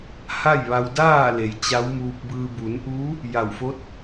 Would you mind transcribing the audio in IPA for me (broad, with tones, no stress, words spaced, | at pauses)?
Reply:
ha˥˨jʋa˧wdaː˥˨le˩˧j t͡ɕa˧˥wmuː˧p̚bɯː˧ bu˩˧n ʔuː˧˥ | ja˧˩wfo˧˥t̚